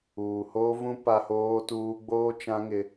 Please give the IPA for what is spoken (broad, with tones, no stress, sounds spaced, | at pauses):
uː˨ h oː˦ v ũ˦ p a˦ h oː˦ t uː˦ ɡ͡b oː˦ t͡ʃ ã˦ ŋ ɪ˦